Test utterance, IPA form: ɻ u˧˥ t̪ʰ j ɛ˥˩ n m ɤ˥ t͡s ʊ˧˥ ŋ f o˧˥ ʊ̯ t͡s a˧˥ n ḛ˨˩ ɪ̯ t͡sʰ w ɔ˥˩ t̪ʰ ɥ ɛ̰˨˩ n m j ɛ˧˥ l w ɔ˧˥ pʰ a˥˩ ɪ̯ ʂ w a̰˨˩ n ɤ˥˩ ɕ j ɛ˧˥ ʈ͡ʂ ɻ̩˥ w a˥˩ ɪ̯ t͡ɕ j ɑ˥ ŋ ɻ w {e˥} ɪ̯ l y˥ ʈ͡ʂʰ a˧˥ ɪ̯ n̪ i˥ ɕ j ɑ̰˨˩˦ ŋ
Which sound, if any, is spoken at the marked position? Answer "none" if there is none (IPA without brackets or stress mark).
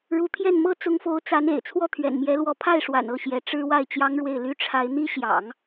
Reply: e˥˩